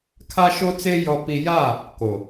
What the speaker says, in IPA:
kʰ a˦ ʃ o˦ t͡s e˦ j ɔ˦ p i˦ j a˦˨ | k o˨

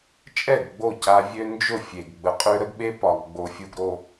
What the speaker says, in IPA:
t͡ʃʼ ɛ˦˨ ɡ ɡ͡b o˦˨ c a˦ vʲ ø˦ n d͡ʒ ʊ˦˨ fʲ e˨ ɡ ɡ͡b ə˨ qʼ ø˦ ɾ ə˦ ɡ ɓ e˦ p ɒ˨ ɡ ɡ͡b o˨ fʲ u˨ ɡ ɾ o˨

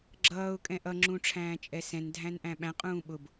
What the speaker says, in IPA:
ɡ͡ǁ ʌː ʊ̯ kʼ ɛ̃ ʔ ʌ ŋ͡ǁ ũ ʈ͡ʂʰ æ̃ː t͡ʃʼ ɛ s ɛ̃ n dʱ æ̃ n ʔ æ̃ ɓ æ̃ qʼ ũː ɓ ʊ b

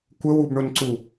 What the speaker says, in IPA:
kʷ ə w u b ɳ ʊ n ǀ u

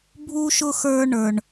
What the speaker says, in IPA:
bʱ u˥ ʃ ʊ˥ x ə˞˦ ɳ ə˞˩ ɳ

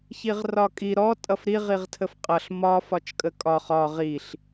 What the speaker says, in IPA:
ç i ʁ r ɒ kʼ i ɾ ɔ tʼ ʌ f ɾ i ʁ i ʁ tʰ ə f qʼ ʌ ɬ m ɒ f ɒ t͡ʃ kʼ ə kʼ ɒ χ ɒ ʁ i ɬ

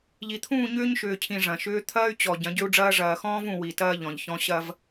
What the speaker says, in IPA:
ʎ i˨ t̪ʰ ũː˦˨ ɲ ʏː˦ ɲ ʃ ʏː˨ cʰ ĩ˨ ʐ ɐ̃˨ ʃ ʏː˦ t̪ʰ ɐː˦ y̯ t͡ɕ ɔ˨ ɟ ɐ̃˨˦ ɟ ʏ˦ u̯ ɖ͡ʐ ɐː˦ ʐ ɐː˨ x ɔ̃ː˦ v ũ˨ w i˨ t ɐː˦ ʎ ɔ̃˨ ʎ ç ɔ̃˦ ɕ ɐ˦ v

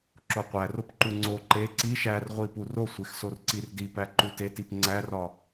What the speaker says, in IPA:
ǁ o qʷ æ r o p ǃ u ŋ͡ǀ o ǃ e ǀ i ʃ æ r ʁʷ i p u r o sʷ e x s o r ǀ i r d i p æ ǃ u t e t i p ŋ͡ǀ æ r ɒ

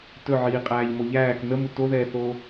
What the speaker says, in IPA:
t ɵ ʕ iː qʼ æː ʎ m o ʎ æː k n ə m u t o ð ɛː θ oː

